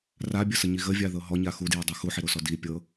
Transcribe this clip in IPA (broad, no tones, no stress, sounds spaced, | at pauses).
r a bʲ ə s ə ɲ i ɣ ə vʲ a ð ɤ ɦ ɔ ɲ a x u d j ɤ dˤ u x u ħ i ɾ o s ɔ d i pʲ ɤ